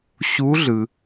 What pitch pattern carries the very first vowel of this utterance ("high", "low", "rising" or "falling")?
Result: rising